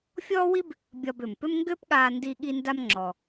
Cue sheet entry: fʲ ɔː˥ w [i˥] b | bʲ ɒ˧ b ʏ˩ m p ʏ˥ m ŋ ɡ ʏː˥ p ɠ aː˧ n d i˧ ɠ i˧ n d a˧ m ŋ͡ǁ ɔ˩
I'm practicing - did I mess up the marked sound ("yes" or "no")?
no